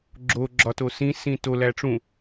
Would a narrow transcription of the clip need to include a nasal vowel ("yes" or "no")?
yes